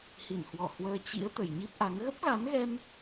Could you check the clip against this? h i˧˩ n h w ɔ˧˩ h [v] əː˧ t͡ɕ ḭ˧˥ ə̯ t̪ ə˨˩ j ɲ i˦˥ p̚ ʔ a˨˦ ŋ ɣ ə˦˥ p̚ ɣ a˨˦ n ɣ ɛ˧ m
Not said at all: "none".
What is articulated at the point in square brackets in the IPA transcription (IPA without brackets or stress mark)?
w